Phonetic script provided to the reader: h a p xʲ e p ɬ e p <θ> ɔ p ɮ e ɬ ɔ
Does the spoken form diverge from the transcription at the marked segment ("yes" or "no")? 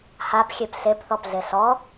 no